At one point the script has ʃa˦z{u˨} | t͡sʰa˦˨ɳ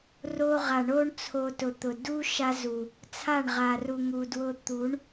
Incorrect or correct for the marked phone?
correct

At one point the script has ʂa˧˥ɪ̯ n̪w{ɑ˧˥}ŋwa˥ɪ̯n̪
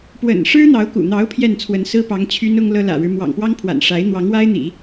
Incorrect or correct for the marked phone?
correct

